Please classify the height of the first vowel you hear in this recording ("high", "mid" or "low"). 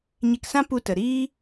mid